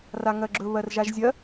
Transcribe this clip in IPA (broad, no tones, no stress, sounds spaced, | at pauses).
r a ŋ ɜ ɡ͡ǁ ɵ β ɜ r ʒ a ʒ zʲ ɜ